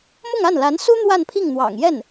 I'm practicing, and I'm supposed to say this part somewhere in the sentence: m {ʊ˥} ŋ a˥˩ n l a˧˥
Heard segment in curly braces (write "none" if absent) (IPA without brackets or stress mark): ʊ˥˧